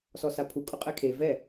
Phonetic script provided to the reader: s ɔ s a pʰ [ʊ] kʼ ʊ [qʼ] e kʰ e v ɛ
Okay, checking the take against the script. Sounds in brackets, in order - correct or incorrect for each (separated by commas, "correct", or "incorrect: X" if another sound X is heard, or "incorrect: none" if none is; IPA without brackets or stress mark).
incorrect: u, correct